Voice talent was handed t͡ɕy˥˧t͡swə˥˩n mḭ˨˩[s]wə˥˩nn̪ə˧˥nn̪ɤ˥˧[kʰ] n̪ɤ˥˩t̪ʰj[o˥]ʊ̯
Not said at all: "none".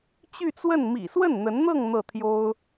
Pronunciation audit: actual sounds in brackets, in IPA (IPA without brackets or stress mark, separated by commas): s, ŋ, o˥